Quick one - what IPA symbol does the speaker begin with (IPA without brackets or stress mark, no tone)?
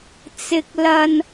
t͡s